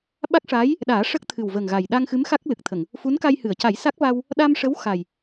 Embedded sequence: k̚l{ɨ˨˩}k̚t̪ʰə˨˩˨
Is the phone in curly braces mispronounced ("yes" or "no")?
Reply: no